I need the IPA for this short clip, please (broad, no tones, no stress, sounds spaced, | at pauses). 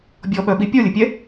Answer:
bʲ ɔ ɓ œ ɓ i pʲ ɔ lʲ ə pʲ ɛ